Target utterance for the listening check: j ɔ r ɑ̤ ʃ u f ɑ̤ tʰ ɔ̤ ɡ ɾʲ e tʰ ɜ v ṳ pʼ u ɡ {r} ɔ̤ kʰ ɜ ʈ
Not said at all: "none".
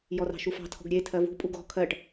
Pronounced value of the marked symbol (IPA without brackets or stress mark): ɣ